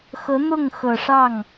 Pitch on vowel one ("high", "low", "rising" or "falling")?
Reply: rising